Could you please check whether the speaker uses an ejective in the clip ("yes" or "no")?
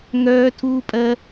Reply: yes